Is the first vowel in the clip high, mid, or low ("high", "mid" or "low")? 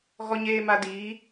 mid